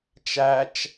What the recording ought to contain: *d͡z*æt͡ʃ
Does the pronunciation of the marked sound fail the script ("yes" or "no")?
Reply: yes